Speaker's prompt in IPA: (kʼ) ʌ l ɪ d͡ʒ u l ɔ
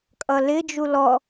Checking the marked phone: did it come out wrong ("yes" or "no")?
no